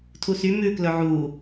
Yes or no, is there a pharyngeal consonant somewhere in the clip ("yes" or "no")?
yes